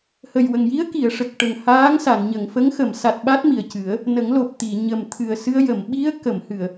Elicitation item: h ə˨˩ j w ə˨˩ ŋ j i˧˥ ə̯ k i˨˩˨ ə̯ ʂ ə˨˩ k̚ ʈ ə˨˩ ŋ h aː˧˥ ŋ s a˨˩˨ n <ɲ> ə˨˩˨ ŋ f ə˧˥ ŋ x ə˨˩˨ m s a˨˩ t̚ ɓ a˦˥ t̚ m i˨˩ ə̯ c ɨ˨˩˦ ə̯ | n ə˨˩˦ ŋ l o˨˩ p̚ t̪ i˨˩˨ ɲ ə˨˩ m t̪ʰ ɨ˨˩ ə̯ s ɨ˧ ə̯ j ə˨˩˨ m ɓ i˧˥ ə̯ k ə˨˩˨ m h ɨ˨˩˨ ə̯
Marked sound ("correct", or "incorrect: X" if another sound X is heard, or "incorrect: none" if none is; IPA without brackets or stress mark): correct